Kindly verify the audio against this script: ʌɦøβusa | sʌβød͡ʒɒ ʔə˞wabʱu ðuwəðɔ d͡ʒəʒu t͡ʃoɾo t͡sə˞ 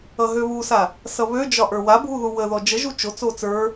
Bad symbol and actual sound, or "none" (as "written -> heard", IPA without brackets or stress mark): ɾ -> t͡s